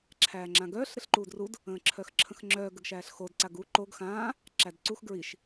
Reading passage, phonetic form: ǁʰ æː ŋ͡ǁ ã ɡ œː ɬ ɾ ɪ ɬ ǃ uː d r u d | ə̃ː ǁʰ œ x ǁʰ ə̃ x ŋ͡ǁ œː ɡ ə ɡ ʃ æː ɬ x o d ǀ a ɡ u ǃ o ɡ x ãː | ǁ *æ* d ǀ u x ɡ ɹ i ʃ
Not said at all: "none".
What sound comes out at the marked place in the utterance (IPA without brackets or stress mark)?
æ